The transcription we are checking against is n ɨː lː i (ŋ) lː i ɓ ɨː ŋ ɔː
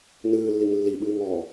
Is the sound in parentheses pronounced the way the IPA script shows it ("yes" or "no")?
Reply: yes